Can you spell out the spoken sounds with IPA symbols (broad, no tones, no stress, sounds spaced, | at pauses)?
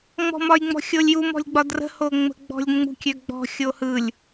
ŋ͡m ɔ̤ m ɒ j ŋ͡m ɔ̤ xʲ o lʲ j u m ɔ̤ lʲ ɡ͡b ɒ d r ə̤ h o ŋ͡m ə̤ ɡ͡b ɔ̤ lʲ ŋ͡m ṳ kʲ ø ɡ͡b ɔ̤ xʲ o h ɯ lʲ